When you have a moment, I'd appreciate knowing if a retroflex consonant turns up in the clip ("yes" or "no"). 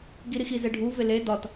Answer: yes